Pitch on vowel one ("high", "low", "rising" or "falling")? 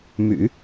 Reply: low